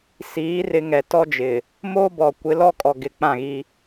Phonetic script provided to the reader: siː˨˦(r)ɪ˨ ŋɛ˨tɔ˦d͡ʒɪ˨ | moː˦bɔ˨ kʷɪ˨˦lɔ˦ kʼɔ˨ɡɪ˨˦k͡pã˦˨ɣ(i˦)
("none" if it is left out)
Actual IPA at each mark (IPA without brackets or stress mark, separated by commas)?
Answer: r, i˦